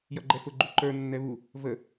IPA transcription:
j ʌ ɡ͡ǃ ɛ f ʊ ɡ͡ǃ u ǃ ə˞ nː ɛ β u | v ə

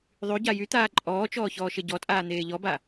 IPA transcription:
ðˤ y ɟ a j y t̪ aː ǃʼ ɔː t͡ʃ ɔː ç ɔː ʃ e ɟ ɔ tʼ aː n̪ eː ʎ ɔ b a

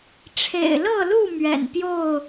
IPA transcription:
ʈ͡ʂʰ ḛ˨˩ ɪ̯ l ɤ˥˨ l u˥˨ m ɥ ɛ̰˨˩ n p j o˥˨ ʊ̯

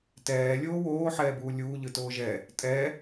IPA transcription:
t ɛː lʲ oː w oː ħ ɛː b uː lʲ uː ʎ ɯ t oː ʒ ɛ | tʼ ɛ

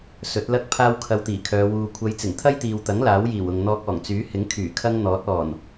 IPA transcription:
s ɵ˨˥ t̚ l ɐ˥ k̚ pʰ aː˥ w kʰ ɐ˧ w t̪ iː˨˩ kʰ œː˨˧ w uː˨ kʷʰ ɐ˨˧ j t͡s ɪ˨˩ ŋ t̪ʰ ɐ˥ j t̪ iː˨ w t̪ ɐ˨˥ ŋ l aː˨˥ w j iː˨˩ w ʊ˨ ŋ n̪ ɔː˧ k̚ ɔː˨˩ ŋ t͡s yː˨˥ h ɪ˨˥ ŋ kʰ yː˨˩ kʰ ɐ˥ ŋ n̪ ɔː˨˥ t̚ ɔː˨˩ n

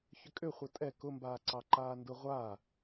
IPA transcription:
ç ʏ kʼ ʏ χʷ ə tʼ ɛ k ʊ m b aː ǀ ɑ ǃ aː n d ʊ ʁʷ a

